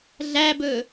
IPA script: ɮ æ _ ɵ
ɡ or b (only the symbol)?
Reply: b